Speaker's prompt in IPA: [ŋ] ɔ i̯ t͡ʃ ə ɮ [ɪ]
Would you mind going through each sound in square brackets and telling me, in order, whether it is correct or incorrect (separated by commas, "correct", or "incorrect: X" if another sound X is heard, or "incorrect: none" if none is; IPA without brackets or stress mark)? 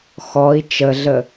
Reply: incorrect: x, incorrect: ə